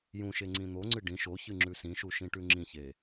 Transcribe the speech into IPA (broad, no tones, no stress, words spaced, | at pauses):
jũʃe ŋ͡ǀĩn̪oŋ͡ǀɨ ɖĩ ʃoçɨ ŋ͡ǁʉsĩʃu ʃĩʈʉŋ͡ǁĩçe